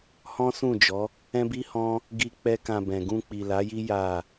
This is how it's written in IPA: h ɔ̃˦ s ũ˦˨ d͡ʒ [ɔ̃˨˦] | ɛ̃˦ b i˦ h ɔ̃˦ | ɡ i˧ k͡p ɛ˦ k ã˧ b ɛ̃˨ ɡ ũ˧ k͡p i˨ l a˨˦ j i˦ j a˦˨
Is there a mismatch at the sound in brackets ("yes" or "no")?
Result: yes